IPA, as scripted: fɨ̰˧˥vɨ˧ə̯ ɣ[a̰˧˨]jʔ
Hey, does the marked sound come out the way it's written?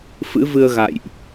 yes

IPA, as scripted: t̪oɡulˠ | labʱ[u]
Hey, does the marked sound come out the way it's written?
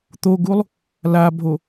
no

